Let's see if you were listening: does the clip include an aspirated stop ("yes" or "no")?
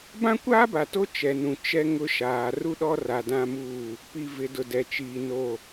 no